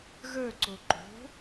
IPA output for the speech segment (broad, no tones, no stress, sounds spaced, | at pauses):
ɣ ə˞ ǀ o ǃ o̤